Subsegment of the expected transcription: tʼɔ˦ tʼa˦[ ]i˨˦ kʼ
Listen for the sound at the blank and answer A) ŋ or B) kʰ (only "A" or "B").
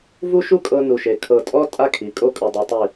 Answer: B